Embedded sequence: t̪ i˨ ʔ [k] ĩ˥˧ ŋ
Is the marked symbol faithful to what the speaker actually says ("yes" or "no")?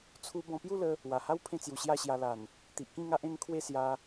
yes